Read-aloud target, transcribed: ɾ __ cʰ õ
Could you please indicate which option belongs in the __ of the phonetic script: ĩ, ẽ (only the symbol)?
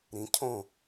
ĩ